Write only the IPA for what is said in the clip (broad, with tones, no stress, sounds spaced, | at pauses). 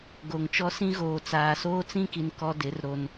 ɡ o˨ ŋ t͡ʃ ɔ˦ s ĩ˦ ɣ oː˨ t͡s aː˨ s oː˦ t͡s ĩ˦ k i˨ n k ɔ˦ d ɪ˨˦ r ɾ o˨ n